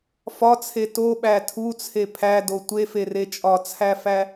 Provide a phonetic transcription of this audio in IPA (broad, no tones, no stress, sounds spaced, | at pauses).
f ɒ t͡sʰ e t o ɓ æ tʰ u t͡sʰ e pʰ æ d o tʷ e f e r e t͡ʃʼ ɒ t͡sʰ æ f æ